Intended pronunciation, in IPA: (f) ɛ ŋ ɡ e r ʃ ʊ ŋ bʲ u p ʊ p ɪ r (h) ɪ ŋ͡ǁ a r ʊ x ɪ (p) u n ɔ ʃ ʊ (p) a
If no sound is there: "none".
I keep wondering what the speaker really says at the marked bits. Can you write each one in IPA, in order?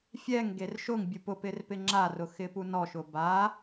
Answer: fʲ, p, p, b

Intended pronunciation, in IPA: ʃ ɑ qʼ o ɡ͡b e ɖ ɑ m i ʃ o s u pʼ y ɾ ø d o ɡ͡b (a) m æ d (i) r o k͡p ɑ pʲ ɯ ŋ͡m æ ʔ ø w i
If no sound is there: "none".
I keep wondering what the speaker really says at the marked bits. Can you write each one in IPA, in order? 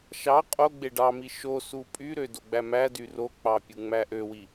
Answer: æ, y

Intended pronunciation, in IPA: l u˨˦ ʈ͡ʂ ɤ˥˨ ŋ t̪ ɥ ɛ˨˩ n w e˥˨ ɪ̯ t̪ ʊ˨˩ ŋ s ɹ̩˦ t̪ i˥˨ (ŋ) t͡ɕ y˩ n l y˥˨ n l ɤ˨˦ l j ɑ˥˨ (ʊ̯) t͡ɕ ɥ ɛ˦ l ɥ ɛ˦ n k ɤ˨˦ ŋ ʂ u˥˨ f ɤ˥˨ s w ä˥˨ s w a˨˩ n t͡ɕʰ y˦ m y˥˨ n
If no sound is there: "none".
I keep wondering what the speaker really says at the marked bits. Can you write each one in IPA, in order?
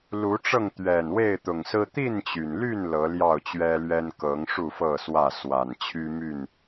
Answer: n, ʊ̯

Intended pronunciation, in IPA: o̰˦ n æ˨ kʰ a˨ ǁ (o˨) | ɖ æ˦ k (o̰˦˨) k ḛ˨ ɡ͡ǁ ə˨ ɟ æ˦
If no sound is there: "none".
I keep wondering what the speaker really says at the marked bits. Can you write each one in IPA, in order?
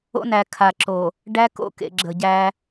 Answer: o˨, o̰˦˨

